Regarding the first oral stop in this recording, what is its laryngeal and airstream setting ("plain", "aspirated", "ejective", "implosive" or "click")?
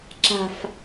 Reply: click